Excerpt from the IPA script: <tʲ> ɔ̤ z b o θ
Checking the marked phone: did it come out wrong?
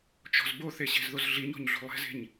yes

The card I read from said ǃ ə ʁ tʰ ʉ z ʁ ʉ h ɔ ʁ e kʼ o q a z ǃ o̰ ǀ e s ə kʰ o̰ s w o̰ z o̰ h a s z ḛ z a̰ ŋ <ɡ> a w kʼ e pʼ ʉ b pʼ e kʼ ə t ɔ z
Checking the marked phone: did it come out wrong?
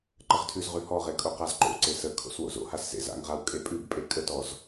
yes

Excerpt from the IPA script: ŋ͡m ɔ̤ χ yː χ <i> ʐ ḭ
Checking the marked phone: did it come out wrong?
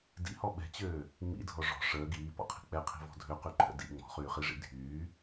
no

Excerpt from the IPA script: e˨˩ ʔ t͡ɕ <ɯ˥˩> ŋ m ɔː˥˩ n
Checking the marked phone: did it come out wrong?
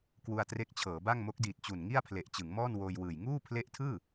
yes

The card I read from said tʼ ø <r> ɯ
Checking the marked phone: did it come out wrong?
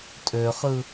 yes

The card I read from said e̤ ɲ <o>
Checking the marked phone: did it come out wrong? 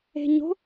yes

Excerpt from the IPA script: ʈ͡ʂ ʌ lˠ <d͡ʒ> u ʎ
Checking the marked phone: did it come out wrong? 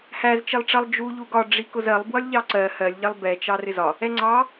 no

